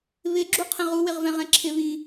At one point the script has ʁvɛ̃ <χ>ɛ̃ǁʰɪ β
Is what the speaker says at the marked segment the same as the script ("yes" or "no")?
no